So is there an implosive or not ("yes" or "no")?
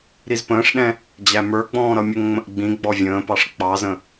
yes